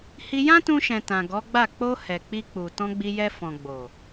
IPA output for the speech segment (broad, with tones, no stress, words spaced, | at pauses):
hi˧jã˦tũ˧ʃɛ̃˨ tã˨ɡɔ˨˦ɡ͡ba˦˨ k͡po˧hɛ˨ k͡pi˧k͡pu˨ tɔ̃˧ɡ͡bi˧jɛ˧ fɔ̃˨ɡ͡bo˨